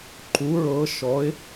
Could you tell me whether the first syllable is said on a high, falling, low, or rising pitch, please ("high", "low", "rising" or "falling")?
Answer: rising